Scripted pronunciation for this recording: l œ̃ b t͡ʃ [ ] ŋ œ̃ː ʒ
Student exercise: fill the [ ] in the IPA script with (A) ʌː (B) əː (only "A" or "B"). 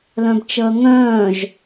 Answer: B